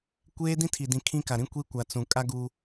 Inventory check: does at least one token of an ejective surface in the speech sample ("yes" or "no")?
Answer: yes